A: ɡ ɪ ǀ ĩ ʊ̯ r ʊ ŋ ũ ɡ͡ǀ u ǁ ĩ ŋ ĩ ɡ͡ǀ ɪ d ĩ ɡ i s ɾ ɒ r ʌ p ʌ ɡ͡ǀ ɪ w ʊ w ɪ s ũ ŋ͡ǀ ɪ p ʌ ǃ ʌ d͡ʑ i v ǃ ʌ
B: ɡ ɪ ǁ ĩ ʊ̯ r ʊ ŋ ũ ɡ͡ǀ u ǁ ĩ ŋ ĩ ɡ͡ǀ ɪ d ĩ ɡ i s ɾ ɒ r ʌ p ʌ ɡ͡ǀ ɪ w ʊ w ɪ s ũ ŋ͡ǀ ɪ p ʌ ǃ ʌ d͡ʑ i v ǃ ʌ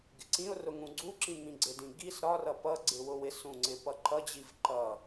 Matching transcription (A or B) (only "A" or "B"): A